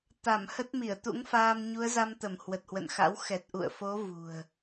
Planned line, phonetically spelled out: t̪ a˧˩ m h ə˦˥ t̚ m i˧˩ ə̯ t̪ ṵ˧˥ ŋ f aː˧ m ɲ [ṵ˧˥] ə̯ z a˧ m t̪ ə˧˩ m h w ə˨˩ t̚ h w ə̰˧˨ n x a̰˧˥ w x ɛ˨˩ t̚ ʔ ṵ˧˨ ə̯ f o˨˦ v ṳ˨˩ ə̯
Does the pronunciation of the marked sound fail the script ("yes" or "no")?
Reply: yes